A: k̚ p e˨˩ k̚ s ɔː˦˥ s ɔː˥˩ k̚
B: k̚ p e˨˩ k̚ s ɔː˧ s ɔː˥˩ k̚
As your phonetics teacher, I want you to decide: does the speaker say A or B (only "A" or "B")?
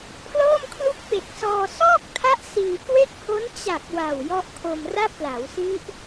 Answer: B